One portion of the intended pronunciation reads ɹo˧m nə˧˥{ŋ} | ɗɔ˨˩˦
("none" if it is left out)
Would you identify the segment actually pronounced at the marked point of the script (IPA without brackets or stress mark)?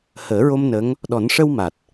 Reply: ŋ